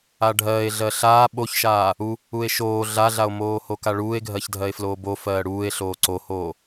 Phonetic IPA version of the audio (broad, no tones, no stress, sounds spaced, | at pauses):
a ɖʱ ɜ e̯ ɮ ɜ ɬ aː ɓ o ç ʃ aː | u | u e̯ ʃ oː ɮ a ɮ a o̯ m oː h o k a ɭ uː e̯ ɡʱ ɜ ç dʱ ɜ e̯ f l oː b o f ɜː ɽ uː e̯ ɬ oː ǀ o h oː